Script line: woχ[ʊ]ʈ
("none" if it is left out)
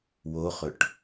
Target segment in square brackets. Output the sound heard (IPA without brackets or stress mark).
ɵ